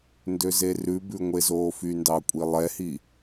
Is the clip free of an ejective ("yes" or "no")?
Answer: no